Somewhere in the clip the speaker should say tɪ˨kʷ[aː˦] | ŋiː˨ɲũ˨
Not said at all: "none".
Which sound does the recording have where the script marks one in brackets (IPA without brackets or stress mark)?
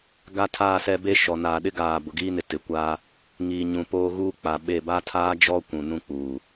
aː˦